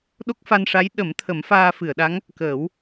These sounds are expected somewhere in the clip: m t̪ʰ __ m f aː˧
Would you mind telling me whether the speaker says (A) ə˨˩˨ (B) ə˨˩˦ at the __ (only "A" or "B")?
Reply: B